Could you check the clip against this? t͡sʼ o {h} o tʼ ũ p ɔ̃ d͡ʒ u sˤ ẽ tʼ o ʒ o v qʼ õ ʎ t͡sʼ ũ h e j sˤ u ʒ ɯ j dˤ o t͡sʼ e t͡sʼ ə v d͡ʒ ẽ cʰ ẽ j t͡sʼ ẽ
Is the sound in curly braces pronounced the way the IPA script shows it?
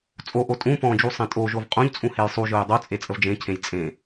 no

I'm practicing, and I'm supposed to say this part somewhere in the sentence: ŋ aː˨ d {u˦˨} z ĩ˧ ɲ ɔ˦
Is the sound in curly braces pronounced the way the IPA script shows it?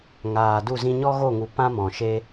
yes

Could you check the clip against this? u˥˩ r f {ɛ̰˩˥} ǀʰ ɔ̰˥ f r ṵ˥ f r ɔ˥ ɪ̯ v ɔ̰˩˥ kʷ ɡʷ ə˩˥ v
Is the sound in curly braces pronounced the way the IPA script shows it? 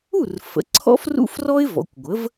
no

